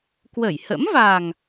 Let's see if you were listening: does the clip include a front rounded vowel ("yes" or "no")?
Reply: no